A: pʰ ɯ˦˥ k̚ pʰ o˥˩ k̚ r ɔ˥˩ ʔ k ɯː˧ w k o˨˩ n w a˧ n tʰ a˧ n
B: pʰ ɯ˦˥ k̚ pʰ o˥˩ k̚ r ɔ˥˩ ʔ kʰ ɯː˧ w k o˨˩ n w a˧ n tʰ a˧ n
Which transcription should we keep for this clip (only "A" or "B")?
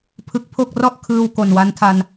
B